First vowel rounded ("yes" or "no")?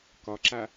yes